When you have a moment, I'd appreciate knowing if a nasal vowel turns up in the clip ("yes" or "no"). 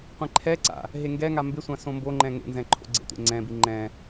yes